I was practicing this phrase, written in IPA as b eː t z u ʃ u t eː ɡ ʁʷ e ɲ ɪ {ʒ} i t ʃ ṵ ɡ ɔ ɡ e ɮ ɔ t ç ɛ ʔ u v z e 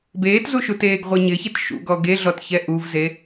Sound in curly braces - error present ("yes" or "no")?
yes